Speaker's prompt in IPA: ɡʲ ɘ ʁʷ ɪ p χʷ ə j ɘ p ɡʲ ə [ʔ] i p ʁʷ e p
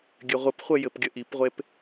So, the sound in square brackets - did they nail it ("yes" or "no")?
yes